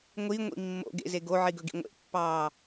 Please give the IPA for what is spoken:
ŋʷ i ŋʷ ḭ mː o̰ ɡ ḛ z e ɡ o ʕ i ɡ ɵ ɡ ḭ ŋʷ ḛ pː ɑː

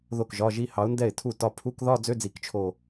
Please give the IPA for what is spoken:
ð o˥˩ k ʒ ɒ˧˥˧ ʒ i˥˧ h ɑ˨˥ ʊ̯ n d ɛ˥˩ ɪ̯ tʰ u˥˩ t ɒ˥˧ pʰ u˧˥˧ k ð ɒ˥˧ d͡z ø˧˥˧ d͡z i˧˩˧ k t͡ʃʰ o˥˧

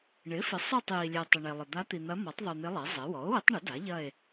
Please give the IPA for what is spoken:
ɳ ɪ˩˥ f ɪ˩˥ sˤ œ˦˨ tˤ j i˨ lʲ e˨ tˤ ɪ˨ ɳ e˨ lˠ ɪ˨ d̪ a˧˥ t̪ i˨ n̪ ɐ˧˥ m ɔ˩˥ tˤ ðˤ u˨ n̪ ɪ˧˥ lˠ e˩˥ zˤ e˩˥ w ɔ˩˥ o̯ w ɪ˧˥ tˤ ɳ ɪ˩˥ d a˩˥ ʎ ɐ˦˨ e̯

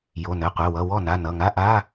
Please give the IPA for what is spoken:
j o˩˧˩ n ɘ˩˧˩ qʷ e˩˧˩ w ʌ˩˧˩ w ɔ˥˩ n a˩˧˩ n ʌ˩˧˩ ŋ a˧˥˧ ʔ a˧˥˧

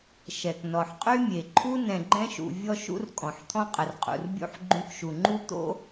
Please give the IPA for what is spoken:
ʃ ɛ˨ k n ɔ˨ ħ qʼ y˦ mʲ e˨ ǃʰ u˦ n ɛ̃˨ ɡ͡ǃ ɛ̃˧ ʃ ṵ˨ vʲ ɔ˦ ʃ ṵ˦ r kʼ ɔ̃˨ ħ t̪ʰ ɔ̃˦ qʼ ə˨ r qʼ ṵ˨ r bʲ ṵ˦ ħ ɡ͡ǃ ũ˧ k ʃ u˨ ŋ͡ǃ u˦ t̪ o̰˦

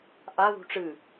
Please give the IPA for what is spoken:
ʔ a ð ṳ ʈ͡ʂ ɨ

